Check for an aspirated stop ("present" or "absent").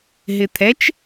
present